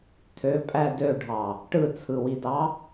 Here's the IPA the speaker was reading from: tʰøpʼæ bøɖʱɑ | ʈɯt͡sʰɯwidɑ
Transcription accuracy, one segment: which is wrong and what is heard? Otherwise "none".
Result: b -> d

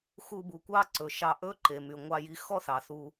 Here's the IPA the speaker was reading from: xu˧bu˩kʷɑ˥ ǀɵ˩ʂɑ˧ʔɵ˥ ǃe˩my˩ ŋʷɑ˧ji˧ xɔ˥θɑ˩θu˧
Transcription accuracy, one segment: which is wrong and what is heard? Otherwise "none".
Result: ʂ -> ʃ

